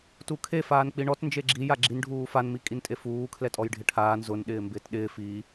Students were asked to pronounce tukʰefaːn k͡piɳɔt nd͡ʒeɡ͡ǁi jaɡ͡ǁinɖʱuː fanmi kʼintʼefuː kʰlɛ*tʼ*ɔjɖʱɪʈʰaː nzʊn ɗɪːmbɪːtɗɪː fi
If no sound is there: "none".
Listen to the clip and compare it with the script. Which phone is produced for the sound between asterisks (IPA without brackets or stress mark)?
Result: tʼ